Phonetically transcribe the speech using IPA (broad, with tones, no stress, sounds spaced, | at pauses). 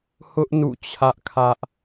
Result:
h ʊ˦ ʔ n ṵ˦˨ t͡ɕʰ ä˦ ʔ kʰ ä˦ ʔ